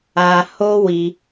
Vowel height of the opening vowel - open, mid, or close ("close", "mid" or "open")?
open